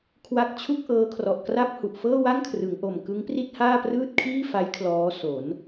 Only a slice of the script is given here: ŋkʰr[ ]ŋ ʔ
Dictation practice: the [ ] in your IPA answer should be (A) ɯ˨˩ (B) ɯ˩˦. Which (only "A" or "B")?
B